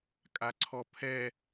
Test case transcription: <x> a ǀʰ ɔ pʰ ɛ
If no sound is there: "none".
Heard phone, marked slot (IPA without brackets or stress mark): kʼ